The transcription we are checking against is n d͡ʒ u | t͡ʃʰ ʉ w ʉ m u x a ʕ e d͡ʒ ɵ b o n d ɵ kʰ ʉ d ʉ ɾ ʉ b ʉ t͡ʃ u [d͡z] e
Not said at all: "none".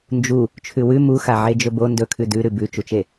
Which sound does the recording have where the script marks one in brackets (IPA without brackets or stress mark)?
t͡ʃ